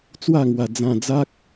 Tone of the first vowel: falling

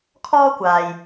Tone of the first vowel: high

